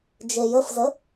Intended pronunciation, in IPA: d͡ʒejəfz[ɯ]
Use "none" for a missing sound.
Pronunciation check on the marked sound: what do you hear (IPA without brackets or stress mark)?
ə